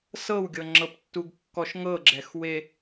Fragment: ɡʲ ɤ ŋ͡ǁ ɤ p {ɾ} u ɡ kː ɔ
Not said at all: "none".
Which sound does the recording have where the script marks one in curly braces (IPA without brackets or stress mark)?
tː